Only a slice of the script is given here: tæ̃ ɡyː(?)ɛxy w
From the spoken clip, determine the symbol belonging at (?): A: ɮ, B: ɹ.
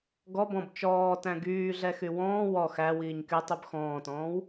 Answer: A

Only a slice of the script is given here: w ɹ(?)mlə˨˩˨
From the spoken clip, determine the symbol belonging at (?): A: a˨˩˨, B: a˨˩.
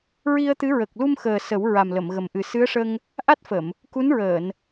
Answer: B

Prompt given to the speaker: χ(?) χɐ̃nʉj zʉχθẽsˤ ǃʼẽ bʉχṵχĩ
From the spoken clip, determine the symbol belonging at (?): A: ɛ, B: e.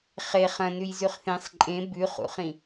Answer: B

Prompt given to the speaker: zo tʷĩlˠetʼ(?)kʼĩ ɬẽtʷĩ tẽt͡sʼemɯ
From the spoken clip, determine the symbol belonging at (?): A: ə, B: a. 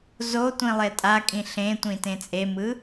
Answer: B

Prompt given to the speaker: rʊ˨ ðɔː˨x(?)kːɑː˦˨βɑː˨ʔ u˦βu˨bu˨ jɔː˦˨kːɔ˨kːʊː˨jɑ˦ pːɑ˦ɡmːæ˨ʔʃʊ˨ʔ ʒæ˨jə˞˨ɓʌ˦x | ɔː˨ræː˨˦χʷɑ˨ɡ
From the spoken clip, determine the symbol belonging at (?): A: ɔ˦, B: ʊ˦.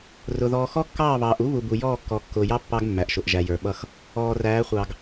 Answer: A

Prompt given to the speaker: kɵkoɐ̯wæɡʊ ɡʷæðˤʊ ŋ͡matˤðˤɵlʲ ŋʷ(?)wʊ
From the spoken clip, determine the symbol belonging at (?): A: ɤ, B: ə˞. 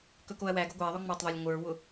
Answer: B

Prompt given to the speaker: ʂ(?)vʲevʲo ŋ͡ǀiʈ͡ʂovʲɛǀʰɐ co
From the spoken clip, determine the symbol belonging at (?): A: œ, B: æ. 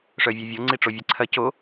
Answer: A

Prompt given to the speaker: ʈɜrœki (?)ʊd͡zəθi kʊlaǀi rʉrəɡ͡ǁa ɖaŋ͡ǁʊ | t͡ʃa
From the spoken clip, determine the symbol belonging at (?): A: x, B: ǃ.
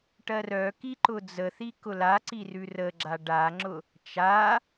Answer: B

